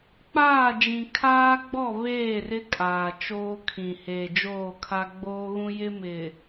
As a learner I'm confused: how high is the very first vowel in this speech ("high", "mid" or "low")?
low